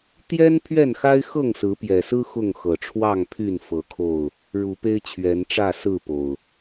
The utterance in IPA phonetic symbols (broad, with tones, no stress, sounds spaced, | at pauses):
t̪ j ɛ˦ n pʰ ɥ ɛ˥˨ n x a˦ ɪ̯ x ɤ˥˨ ŋ s ɹ̩˨˦ p j ɛ˨˩ s ɹ̩˦ x ʊ˥˨ ŋ x ɤ˨˩ ʈ͡ʂʰ w ɑ˥˨ ŋ pʰ y˥˨ n f ɤ˨˦ kʰ o˥˨ ʊ̯ | ɻ u˨˦ p e˦ ɪ̯ t͡ɕʰ ɥ ɛ˨˦ n ʈ͡ʂ ä˥˨ s ɹ̩˥˨ p o˨˩ ʊ̯